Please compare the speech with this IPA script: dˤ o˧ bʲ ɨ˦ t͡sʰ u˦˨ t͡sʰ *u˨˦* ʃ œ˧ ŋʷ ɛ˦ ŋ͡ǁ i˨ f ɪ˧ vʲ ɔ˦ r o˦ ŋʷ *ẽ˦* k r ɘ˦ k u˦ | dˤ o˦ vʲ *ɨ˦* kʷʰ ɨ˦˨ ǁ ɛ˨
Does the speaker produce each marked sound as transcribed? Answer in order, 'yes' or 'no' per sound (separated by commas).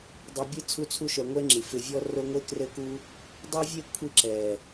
no, no, no